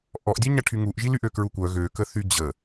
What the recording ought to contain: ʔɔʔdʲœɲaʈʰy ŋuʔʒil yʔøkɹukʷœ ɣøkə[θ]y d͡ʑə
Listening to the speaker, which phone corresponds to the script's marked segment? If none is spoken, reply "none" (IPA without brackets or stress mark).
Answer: θ